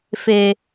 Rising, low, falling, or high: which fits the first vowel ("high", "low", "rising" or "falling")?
low